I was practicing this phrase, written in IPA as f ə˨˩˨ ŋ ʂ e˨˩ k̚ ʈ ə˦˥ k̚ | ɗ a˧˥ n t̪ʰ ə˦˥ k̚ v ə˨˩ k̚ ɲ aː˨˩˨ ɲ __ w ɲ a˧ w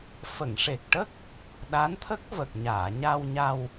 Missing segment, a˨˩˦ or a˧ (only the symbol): a˧